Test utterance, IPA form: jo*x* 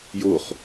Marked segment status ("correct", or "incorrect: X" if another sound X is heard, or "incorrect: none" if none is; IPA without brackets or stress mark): incorrect: χ